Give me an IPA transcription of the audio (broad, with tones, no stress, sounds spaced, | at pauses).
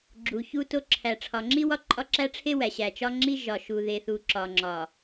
ɡ͡ǁ u˨ ç u˦ t o˦ ǁʰ æ˨ ʈ͡ʂʰ ɒ˨ ŋ͡ǁ i˦ w ɒ˦ ǃʼ ɒ˦ ǁ æ˦ ʈ͡ʂʰ e˦ w æ˨ ɕ æ˨ t͡ʃ ɒ˦ ŋ͡ǁ i˦ ʒ ɒ˨ ʃ u˨ ð e˨ θ u˨ ǁ ɒ˨ ŋ͡ǁ ɒ˨